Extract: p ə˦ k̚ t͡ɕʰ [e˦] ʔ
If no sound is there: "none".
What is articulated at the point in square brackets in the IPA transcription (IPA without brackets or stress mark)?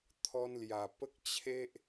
e˦